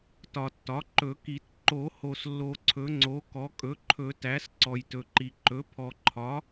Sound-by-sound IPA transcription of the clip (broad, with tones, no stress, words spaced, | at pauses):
tɒ˨tːɒ˩˥ǃɵ˨˩˦ki˨˩˦t ǃo˨˩˦ho˨s lːo˨ǀʰɵ˩˥ŋ͡ǀo˩˥ kɔ˩˥kʼɵ˩˥ǃʰɵ˨˩˦tæ˩˥s ǀɔ˨jtɵ˨ǃi˨ ǃɵ˩˥pʰɔ˨ǃʰɒ˩˥